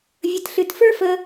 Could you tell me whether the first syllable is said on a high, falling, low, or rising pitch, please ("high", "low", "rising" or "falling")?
low